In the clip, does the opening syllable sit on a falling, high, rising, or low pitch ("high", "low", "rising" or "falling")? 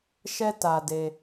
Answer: high